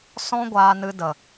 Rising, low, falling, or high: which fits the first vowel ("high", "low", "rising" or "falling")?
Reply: high